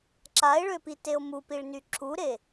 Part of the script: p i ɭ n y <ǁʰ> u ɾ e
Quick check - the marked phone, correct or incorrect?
correct